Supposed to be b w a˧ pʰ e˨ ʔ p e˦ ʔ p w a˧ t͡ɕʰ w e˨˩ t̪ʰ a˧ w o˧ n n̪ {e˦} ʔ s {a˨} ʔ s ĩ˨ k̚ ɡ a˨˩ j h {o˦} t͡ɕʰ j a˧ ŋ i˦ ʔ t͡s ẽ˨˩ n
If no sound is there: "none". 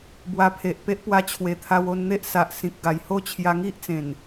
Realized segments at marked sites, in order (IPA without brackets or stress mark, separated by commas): e˦, a˨, o˥˧